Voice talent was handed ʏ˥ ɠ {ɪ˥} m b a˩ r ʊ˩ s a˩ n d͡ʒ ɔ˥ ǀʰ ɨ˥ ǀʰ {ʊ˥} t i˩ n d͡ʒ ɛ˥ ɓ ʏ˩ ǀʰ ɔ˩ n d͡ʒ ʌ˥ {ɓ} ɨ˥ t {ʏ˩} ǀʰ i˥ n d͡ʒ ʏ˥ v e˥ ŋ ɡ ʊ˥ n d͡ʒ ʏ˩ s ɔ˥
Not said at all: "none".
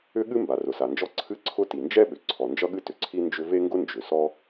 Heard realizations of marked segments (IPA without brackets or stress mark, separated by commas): ɨ˥, ʊ˥, ɠ, ʏ˩